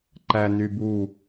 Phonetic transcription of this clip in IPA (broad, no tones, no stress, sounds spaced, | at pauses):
ǃ æ n y b u